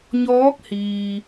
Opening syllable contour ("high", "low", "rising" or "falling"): rising